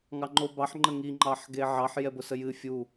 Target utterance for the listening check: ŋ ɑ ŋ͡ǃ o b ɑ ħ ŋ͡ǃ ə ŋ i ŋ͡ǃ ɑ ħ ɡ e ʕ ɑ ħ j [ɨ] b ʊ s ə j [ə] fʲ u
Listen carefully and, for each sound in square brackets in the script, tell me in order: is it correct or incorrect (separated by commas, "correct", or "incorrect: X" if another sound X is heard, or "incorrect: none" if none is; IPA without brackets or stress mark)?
incorrect: ɛ, incorrect: ɨ